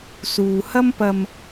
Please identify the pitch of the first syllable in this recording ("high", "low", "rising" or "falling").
low